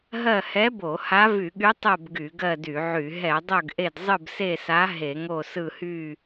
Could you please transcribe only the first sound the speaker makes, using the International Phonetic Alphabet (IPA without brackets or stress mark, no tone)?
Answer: ɦ